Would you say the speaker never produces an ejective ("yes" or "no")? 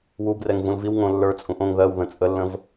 no